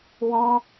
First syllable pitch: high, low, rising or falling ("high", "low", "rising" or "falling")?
high